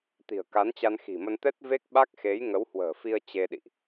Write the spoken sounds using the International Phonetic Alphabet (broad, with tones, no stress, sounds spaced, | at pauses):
t̪ i̤˨˩ ə̯ k a˨˦ n t͡ɕ a˧ n x i̤˨˩ m ə˧ n t̪ ɛ˦˥ t̚ v e˦˥ k̚ ɓ a˦˥ k̚ x e˨˦ j ŋ ə˨˦ w h w ə̤ː˨˩ f i˧ ə̯ t͡ɕ e˧ ɗ ḭ˧˨ ʔ